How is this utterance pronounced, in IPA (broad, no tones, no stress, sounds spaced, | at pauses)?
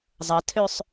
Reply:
zˤ ɐ tʰ ø sˤ